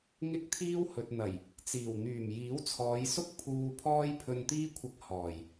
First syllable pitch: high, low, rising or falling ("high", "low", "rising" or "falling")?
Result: high